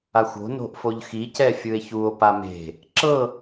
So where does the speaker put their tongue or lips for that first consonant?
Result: velum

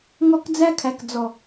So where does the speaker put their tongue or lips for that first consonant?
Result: velum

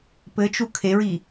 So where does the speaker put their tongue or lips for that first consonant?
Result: lips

